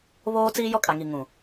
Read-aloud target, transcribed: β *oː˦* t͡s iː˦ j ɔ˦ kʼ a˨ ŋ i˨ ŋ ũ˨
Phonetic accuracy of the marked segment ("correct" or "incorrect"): correct